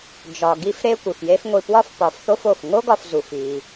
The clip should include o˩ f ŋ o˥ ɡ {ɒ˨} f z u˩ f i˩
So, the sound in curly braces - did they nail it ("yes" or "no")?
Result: yes